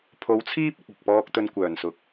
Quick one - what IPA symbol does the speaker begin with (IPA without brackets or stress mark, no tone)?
pʰ